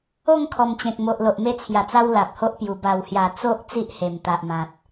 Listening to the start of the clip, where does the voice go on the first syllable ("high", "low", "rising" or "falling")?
falling